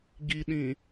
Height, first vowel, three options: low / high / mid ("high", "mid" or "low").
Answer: high